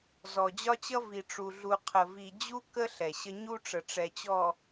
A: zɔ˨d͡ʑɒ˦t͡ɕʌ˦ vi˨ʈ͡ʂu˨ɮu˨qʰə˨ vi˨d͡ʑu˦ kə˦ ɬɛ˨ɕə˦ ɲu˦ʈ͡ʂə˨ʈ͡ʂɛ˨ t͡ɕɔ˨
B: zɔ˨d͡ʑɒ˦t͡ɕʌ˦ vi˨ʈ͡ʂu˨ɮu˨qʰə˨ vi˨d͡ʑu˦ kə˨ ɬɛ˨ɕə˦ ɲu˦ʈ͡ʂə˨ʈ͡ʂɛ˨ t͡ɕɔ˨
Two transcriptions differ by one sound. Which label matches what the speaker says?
A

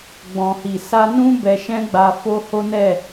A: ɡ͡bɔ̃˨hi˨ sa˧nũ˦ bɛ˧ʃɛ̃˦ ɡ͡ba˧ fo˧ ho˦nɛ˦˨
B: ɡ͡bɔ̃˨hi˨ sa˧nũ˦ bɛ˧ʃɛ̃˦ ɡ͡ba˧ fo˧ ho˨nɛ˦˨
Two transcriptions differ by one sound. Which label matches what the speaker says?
A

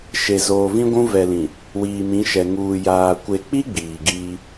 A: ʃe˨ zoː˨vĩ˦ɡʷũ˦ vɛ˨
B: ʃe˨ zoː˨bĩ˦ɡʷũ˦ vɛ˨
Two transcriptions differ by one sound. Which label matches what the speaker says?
A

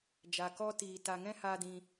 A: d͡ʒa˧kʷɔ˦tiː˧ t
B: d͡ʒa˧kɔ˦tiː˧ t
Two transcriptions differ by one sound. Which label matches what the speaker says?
B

